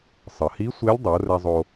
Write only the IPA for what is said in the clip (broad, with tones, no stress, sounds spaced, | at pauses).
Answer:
sˤ ə˩ h i˧˥ sʷ e˧˥ lʲ dˤ o˩˧ r ɛ˧ zˤ o˧